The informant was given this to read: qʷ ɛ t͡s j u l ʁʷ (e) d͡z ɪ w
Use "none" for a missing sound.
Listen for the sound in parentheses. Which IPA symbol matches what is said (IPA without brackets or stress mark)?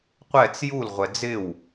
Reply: ɛ